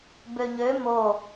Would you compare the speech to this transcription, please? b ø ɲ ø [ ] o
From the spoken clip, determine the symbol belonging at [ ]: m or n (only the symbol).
m